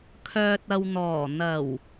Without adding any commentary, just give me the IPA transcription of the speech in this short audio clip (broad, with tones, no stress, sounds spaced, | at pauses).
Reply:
kʰ œː˨ t̚ ɐ˨ w n̪ ɔː˨˩ n̪ ɐ˨˩ w